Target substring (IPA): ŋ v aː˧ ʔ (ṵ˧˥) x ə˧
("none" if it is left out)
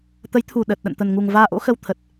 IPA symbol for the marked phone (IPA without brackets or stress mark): o̰˧˥